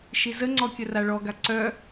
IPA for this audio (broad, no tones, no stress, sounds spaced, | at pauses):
ʃ i z ə ŋ͡ǀ ɔ kʲ ə r a ɭ ɔ ɡ a ǀ œ